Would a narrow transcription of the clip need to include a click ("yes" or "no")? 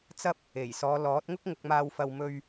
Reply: no